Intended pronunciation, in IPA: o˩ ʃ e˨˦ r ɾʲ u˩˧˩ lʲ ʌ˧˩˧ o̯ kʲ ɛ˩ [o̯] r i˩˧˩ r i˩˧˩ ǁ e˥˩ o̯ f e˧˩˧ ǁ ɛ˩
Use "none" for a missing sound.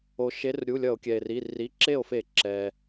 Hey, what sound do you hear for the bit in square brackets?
e̯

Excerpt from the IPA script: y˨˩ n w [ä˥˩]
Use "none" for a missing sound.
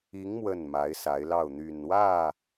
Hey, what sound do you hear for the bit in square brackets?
ä˥˩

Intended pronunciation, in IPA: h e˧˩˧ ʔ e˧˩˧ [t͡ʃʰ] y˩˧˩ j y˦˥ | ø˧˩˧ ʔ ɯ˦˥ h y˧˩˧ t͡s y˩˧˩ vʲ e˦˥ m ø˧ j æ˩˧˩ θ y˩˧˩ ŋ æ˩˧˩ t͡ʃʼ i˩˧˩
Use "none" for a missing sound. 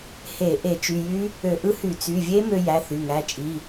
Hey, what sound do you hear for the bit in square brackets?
t͡ʃ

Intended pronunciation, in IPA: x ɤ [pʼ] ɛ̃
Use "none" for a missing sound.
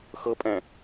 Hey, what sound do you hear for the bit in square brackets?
pʼ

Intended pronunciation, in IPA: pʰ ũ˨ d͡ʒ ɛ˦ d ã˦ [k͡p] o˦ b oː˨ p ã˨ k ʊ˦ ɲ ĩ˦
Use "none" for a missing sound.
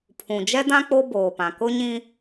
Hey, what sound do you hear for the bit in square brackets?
k͡p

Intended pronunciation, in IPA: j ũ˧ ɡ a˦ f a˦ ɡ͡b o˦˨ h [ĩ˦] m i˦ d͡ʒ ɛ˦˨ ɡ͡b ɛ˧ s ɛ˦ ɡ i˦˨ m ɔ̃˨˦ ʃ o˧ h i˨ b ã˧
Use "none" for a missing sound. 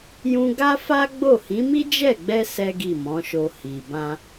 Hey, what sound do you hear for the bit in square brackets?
ĩ˨˦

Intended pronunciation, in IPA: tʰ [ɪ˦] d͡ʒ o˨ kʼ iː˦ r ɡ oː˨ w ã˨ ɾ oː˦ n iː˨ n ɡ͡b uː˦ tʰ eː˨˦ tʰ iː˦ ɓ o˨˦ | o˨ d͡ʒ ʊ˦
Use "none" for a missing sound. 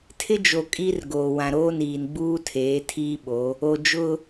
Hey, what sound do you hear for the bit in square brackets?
ɪ˦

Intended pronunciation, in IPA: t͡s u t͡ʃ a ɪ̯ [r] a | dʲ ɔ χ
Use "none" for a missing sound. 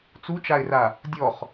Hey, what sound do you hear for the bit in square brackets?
r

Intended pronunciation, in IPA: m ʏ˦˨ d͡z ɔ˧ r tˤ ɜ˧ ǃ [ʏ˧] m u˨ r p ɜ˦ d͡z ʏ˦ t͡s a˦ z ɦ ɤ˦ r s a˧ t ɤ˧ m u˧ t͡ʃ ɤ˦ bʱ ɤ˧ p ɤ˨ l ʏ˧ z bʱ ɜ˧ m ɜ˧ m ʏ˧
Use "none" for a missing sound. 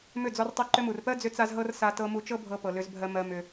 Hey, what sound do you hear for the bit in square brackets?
ʏ˧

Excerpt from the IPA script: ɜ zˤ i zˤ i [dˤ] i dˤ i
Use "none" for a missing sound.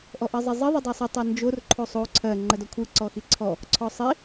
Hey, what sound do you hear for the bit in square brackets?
ðˤ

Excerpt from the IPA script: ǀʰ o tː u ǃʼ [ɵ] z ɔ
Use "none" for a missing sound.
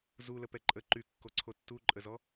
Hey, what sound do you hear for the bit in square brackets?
ə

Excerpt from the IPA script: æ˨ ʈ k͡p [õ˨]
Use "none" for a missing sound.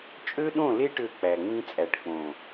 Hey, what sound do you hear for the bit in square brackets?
õ˨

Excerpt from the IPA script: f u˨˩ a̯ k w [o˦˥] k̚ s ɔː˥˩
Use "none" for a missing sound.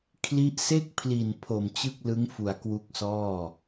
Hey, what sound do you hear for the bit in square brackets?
u˦˥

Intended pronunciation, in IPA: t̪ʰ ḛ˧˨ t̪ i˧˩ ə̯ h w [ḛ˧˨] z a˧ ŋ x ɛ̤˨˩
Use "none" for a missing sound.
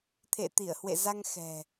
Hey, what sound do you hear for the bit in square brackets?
ḛ˧˨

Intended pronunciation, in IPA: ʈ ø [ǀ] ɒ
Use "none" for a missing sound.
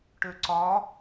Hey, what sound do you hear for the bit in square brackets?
ǀ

